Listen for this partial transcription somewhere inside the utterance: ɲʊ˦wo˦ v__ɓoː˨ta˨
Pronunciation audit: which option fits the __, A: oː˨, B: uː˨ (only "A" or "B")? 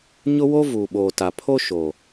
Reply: B